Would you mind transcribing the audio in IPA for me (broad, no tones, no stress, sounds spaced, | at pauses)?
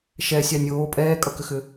ʃ ɛ sʲ ɑ nʲ oː pʼ ɛː kʼ ʌ k ʏ x ʏ